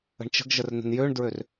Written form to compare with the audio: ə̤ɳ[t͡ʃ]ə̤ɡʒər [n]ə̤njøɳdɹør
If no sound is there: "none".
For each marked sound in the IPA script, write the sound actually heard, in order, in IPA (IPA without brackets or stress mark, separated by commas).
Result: t͡ʃ, n